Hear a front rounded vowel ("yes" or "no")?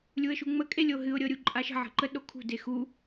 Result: no